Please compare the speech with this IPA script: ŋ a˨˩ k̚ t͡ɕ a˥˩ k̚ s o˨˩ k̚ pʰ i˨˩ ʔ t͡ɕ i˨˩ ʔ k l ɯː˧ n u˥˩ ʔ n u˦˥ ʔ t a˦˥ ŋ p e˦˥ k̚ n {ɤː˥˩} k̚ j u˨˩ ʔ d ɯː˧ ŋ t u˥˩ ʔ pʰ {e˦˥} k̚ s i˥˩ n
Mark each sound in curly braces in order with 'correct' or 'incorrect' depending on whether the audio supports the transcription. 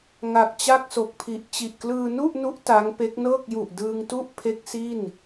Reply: correct, correct

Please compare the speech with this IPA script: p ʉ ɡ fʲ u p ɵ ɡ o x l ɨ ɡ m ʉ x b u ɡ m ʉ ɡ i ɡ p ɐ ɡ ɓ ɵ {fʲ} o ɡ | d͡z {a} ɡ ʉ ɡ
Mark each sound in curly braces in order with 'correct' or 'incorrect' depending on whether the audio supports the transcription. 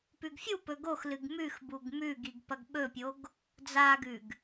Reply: incorrect: pʲ, correct

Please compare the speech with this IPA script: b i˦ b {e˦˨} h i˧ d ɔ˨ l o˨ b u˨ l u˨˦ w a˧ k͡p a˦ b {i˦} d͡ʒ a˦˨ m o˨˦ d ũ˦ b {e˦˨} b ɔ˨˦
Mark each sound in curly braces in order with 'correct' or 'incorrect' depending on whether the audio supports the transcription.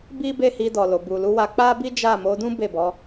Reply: correct, correct, correct

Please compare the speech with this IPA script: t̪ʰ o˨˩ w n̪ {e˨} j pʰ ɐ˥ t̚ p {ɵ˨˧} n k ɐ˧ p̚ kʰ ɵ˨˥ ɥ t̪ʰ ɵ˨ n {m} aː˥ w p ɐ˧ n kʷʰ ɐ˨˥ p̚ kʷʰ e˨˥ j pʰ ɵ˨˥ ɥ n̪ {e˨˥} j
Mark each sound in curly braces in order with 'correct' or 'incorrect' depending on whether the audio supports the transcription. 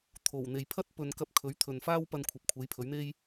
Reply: correct, correct, incorrect: f, incorrect: e˥

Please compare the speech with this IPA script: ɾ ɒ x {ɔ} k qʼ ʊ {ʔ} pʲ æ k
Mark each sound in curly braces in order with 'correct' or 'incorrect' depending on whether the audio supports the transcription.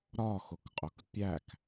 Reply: incorrect: ʊ, incorrect: k

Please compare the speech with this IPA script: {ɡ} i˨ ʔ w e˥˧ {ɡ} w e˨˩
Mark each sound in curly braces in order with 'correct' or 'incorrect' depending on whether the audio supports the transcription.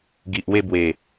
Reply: correct, incorrect: b

